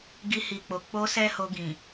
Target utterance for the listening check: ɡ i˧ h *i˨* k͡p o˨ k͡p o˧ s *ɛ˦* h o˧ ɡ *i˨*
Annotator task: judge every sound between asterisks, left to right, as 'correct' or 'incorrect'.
correct, correct, incorrect: ĩ˨

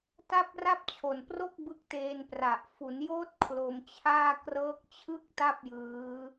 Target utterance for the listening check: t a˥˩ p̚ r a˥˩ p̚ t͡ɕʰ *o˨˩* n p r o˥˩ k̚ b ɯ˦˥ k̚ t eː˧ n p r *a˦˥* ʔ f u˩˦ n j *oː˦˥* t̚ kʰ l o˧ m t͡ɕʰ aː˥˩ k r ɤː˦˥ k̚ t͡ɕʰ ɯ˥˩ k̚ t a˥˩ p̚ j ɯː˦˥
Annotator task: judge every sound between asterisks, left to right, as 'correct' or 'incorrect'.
correct, incorrect: a˨˩, correct

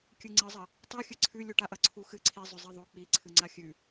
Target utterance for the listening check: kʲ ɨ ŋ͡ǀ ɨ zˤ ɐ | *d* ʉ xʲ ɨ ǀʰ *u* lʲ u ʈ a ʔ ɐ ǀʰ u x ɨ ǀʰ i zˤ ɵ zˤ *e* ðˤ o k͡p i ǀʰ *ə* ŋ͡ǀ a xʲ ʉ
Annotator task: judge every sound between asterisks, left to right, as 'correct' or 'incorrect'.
incorrect: tˤ, incorrect: ʉ, correct, incorrect: ɨ

